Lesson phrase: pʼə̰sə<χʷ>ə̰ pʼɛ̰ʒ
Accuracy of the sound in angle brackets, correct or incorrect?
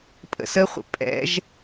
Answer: correct